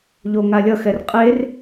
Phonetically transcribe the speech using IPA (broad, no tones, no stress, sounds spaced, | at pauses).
ʎ o ŋ a lʲ ʌ x ɛ r qʼ e r